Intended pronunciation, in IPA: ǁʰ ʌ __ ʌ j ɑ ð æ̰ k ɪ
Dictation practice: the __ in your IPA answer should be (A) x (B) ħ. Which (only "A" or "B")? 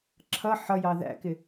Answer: B